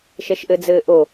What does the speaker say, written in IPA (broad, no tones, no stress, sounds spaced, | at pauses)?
ʃ ɛ ʃ ʔ ɘ d͡z ɘː ʔ o